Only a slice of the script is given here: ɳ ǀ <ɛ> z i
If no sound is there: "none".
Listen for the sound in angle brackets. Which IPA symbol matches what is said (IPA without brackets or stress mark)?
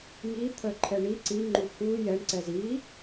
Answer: ɛ